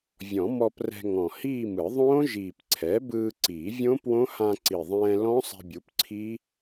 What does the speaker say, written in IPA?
vʲ ɔ̃˨˩˦ m ɔ˧ p r ɛ̤˧ ŋ ɔ̃˨˩ h iː˥˧ m ɯ˨˩˦ ðˤ õː˦˥ ʒ iː˨˩ p ǀʰ ɛ˩˥ b ɯː˧ ǀ iː˨˩˦ vʲ õ˦˥ p w õ˦˥ h ã˧ ǀ i˨˩ ðˤ ɛ̃ː˧ l ɔ̃˦˥ sˤ ɛ̤˧ bʲ u˩˥ p ǀʰ i˦˥

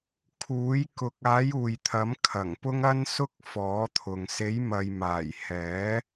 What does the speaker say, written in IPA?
kʰ uː˨˥ j k ʊ˨ k̚ aː˨˥ j uː˨ j t̪ʰ ɐ˨˥ m kʰ ɐ˨˩ ŋ p ʊ˥ ŋ ɐ˥ n s ʊ˥ k̚ f ɔː˨˥ t̪ʰ ʊ˨ ŋ s e˨˥ j m ɐ˨ j m aː˨˩ j h ɛː˨˥

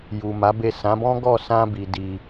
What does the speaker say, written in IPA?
j u˨ m a˨˦ b e˦˨ s ã˨˦ b ɔ̃˦ ɡ ɔ˦˨ s ã˧ b i˨ d i˧

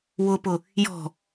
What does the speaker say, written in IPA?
w ʊ p ʊ | j ɔ̤

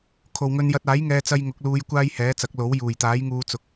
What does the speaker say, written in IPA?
kʰ o˨ w ŋ ɵ˧ n j ɐ˧ t̚ aː˨˥ j ŋ ɛː˧ t͡s ɐ˧ j ŋ ʊ˨˥ k̚ l uː˧ j kʷ aː˥ j h ɛː˨˥ t͡s ɐ˨˥ k̚ l o˨˥ w j uː˨˩ j t̪ aː˨˥ j ŋ uː˨˧ t͡s ʊ˨ k̚

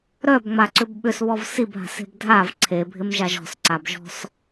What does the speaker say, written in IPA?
ɾ œ b ŋ͡m a ǀ ʏ b ɓ ʏ s β ɔ v s i b ɦ a̤ s e̤ b dʱ a v ǀʰ e bʱ ɪ m ʒ a ʒ ɔ̤ s ǀ a b ʒ ɔ̤ s

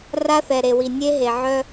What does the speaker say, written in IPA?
r a˦ θ ɛ˨ ɾ e˨ w i˨ nʲ e˦ ɦ e˨ ʕ œ˦

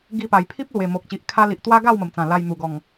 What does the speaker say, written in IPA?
ɡ i˧ p a˨˩ j pʰ i˦ p̚ l w e˨˩ m o˨ k̚ t͡ɕ i˨ ʔ kʰ a˦ l i˨ ʔ t̪ w a˦ ɡ a˥˧ w m ə˨˩ m t͡s ã˨˩ l a˧ j n̪ u˨˩ ɡ ɔ˨˩ ŋ

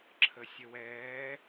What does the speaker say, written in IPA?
ǁʰ ə sʲ ə w ɛː

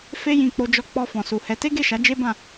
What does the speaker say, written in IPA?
f e˦ j ĩ˧ k͡p o˧ d͡ʒ ɔ˧ k͡p ɔ˧ f ɔ̃˨ s u˨ h ɛ˨˦ t e˦ ɡ e˦˨ ʃ a˨˦ d͡ʒ e˦ b ã˦˨

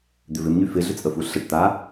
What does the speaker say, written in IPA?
d̪ ʏ v ɪ m ɲ y f ɪ ɮ ʏ t͡sʼ ə f u ɬ ə ʈ t̪ a

